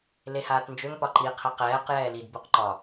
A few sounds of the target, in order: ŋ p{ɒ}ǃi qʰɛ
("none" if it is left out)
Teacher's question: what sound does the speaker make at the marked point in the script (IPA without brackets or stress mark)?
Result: ɒ